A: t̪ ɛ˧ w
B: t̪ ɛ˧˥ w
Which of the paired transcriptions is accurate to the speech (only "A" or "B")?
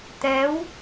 B